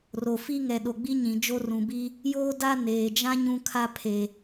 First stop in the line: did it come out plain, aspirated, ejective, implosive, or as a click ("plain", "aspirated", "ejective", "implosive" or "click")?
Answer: implosive